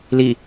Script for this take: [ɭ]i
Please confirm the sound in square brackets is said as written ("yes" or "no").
no